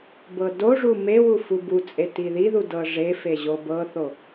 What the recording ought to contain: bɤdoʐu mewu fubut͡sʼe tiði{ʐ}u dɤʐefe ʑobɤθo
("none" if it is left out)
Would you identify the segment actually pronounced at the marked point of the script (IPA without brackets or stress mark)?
ð